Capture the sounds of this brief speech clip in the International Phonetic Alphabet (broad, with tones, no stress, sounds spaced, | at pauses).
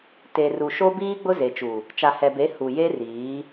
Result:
t e˨ r u˨ ʃ o˦ b iː˦ ɡ͡b ʊ˦ z e˨ t͡ʃ u˨ | t͡ʃ a˨ h ɛ˨ b e˨˦ h u˨ j e˦ r iː˨˦